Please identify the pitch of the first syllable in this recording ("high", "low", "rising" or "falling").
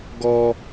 high